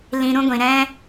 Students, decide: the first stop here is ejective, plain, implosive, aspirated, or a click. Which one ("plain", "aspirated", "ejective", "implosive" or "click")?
plain